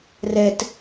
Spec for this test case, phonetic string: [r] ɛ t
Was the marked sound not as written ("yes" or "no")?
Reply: no